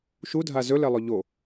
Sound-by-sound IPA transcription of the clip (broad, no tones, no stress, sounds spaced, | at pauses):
ʃ u dʱ a z ɵ l ɛ lˠ ɵ ʎ o